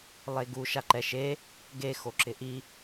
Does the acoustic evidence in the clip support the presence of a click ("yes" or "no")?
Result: yes